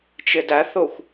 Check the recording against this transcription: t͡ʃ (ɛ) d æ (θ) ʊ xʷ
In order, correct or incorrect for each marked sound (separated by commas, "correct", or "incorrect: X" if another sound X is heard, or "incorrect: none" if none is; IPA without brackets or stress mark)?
incorrect: ɪ, correct